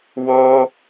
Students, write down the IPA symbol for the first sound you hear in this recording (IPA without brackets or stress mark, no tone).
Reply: w